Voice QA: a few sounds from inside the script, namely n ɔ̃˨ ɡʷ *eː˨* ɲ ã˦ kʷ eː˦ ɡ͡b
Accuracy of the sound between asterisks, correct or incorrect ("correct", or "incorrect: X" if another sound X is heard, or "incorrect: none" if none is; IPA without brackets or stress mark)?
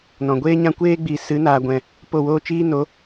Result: incorrect: eː˦